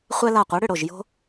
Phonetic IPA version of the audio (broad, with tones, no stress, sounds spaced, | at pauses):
χʷ ɛ˦ l a˧˩ qʷ ɛ˨˦ ɽ ʏ˧˩ ɽ o˧˩ ʒ j o̤˦